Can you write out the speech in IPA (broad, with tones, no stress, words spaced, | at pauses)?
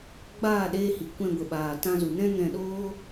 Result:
ɡ͡baː˦˨ɗeː˧hi˨ kʷɛ̃˧ɡʷə˨ɓaː˨ tã˧zu˨nɛ̃˦ŋɛ̃˧ ɗoː˦